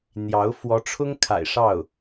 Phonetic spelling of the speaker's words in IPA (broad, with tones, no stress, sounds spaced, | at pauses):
n̪ j ɑ˧˥ ʊ̯ f w ɔ˧˥ ʈ͡ʂʰ ʊ˥ ŋ kʰ a̰˨˩ ɪ̯ ʂ ɑ˥˩ ʊ̯